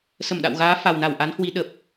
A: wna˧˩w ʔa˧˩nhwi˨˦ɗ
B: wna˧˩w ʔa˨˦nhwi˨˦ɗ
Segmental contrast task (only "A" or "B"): B